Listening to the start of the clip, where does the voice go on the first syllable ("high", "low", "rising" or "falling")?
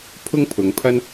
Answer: high